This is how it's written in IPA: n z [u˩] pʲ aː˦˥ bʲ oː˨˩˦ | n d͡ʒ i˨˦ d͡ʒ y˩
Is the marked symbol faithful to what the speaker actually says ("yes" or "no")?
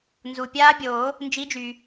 yes